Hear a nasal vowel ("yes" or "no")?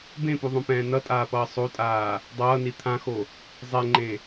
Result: yes